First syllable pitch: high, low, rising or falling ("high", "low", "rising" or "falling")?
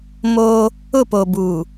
high